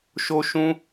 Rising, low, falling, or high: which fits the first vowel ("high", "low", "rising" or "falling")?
high